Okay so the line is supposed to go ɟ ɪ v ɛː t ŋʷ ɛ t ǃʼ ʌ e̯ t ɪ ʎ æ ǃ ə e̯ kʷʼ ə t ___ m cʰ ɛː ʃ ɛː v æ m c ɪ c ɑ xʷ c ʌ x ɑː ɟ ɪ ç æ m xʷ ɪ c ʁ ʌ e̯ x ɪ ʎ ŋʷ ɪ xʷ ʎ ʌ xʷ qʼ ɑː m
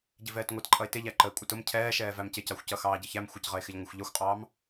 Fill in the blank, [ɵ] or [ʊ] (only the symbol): ʊ